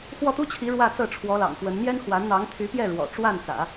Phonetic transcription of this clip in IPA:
x w ɔ˥˩ t̪ u˥ t͡ɕʰ i˧˥ ɻ w ä˥˧ t͡s ɤ˥˩ ʈ͡ʂʰ w ɔ˧˥ l ɑ̰˨˩ ŋ f w ə˧˥ n n̪ j ɛ˥ n x w a˧˥ n n̪ ɑ˧˥ ŋ t̪ʰ y˧˥ p j ɛ˥˩ ɻ w ɔ̰˨˩ ʈ͡ʂ w a˥˩ n t͡s ä̰˨˩˦

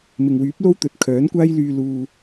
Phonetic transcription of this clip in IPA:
m ɪ˨ ŋ w yː˨˥ p̚ l o˥ w t̪ ɵ˨ t̚ kʰ œː˨˥ n kʷ aː˥ j l yː˧ l uː˨

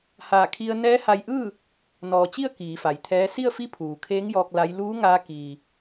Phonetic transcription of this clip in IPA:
h aː˧˩ kʰ i˧ ə̯ n ɛː˧˥ h a˧ j ʔ ɯː˥˨ | n ɔː˩ t͡ɕ i˥˨ ə̯ k iː˩˧ f a˩ j t̪ʰ ɛː˧˥ s i˥˨ ə̯ f i˧˥ pʰ uː˩ kʰ eː˧˥ ŋ j ɔː˧ k̚ l a˧˥ j l uː˧˥ ŋ aː˧ k iː˩

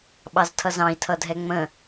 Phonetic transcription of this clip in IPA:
ɓ ɑ z tʰ ʌ z ɑ̃ i̯ tʰ ʌ dʱ ɛ ŋ͡m ə̃

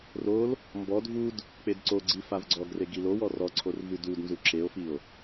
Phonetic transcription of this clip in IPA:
r o l | m b ɔ d v u d | k͡p e d ǀ o ɡ͡ǀ i f a v ɡ͡ǀ ɔ ɡ r e ɡ i l o w ɔ r ɔ ǀʰ o r v ʉ d u d n z u ǁ e o̯ f i o̯

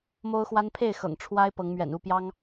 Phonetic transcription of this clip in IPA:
m o˦ ʊ̯ x w a˦ n pʰ e˥˨ ɪ̯ x ɤ̰˨˩ ŋ ʈ͡ʂʰ w a˦ ɪ̯ p ɤ˨˦ ŋ m ɥ ɛ̰˨˩ n u˥˨ p j ɑ˦ ŋ

